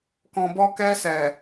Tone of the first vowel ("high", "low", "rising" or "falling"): low